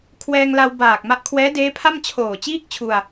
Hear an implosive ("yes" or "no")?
no